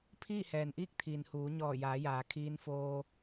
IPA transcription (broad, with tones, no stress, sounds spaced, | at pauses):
pʰ iː˥˨ h ɛː˩ n ʔ iː˥˨ k̚ t̪ʰ iː˩ n h uː˩˧ ɲ ɔː˧˩ j aː˩˧ j aː˩ kʰ iː˧ n f oː˧